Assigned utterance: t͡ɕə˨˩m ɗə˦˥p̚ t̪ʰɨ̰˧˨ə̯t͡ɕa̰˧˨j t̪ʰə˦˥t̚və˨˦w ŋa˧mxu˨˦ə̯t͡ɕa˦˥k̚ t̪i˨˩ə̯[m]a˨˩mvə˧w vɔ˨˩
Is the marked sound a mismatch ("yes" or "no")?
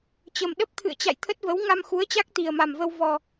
no